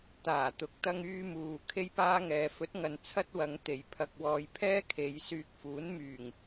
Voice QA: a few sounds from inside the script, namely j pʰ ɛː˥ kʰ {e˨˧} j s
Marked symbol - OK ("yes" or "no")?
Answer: yes